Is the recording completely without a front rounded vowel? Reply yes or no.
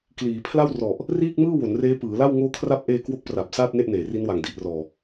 yes